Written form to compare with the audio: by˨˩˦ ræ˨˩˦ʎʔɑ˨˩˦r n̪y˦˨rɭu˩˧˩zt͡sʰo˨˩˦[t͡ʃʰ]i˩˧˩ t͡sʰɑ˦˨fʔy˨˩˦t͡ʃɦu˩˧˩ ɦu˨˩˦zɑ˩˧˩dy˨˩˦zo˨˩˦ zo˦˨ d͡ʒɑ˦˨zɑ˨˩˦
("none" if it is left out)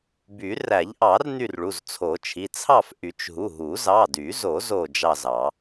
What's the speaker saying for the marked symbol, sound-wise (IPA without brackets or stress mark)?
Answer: t͡ʃʰ